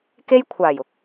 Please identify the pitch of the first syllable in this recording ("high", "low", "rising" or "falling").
high